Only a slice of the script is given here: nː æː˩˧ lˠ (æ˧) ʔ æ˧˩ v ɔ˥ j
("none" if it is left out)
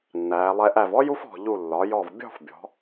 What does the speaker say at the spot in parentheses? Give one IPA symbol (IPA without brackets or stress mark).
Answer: ɛ˧